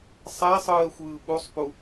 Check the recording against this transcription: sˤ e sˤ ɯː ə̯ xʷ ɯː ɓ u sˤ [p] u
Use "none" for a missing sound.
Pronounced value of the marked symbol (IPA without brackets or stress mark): p